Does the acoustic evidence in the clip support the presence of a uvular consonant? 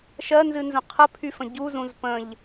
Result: yes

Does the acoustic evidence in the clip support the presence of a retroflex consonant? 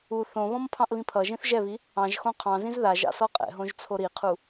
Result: no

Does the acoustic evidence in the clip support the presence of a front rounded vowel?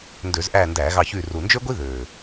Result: yes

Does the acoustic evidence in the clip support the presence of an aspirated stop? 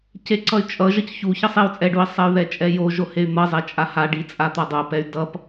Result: no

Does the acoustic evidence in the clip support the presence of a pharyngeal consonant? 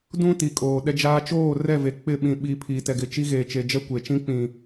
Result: no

